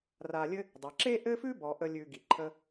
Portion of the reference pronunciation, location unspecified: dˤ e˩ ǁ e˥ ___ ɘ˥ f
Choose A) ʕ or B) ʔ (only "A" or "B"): B